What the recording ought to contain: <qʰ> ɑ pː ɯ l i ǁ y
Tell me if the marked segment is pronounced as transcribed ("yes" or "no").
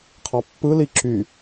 yes